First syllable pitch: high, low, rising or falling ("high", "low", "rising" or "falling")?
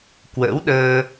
rising